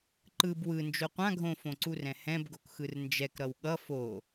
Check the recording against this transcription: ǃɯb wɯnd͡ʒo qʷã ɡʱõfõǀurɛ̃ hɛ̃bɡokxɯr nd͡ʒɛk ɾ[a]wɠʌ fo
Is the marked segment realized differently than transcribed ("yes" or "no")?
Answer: yes